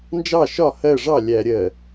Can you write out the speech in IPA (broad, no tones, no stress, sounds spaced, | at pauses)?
n d͡ʒ ɑ ʃ ɒ h ɜ ʐ ɑ lʲ æ ɾʲ ɜ